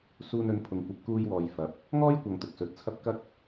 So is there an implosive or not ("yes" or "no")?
no